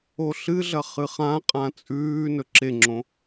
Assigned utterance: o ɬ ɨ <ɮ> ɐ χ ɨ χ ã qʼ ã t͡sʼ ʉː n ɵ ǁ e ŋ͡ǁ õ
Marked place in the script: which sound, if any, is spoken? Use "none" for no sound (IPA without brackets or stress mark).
ɮ